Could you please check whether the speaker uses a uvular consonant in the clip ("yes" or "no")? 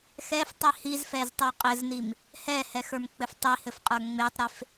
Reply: yes